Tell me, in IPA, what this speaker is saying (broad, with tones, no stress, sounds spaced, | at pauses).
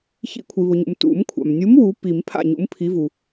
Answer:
ç ḭ˨˩˦ kʷʰ i˩ β ʊ˩ ɲ ṵ˩ m t ṵ˨˩˦ m kʷʰ a̰˩ m nʲ u˨˥ m w u˨˥ p i˨˩˦ m pʰ a̰˥˩ ɲ ṵ˨˥ m pʰ i˨˥ v u˩